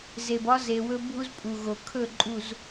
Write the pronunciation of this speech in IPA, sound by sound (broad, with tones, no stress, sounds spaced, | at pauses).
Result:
z e˨ b ɒ˦ z e˨ w ɵ˦ bʱ u˦ z pʼ u˨ ɣ o˨ kʰ ɵ˦˨ ǃʼ u˨ z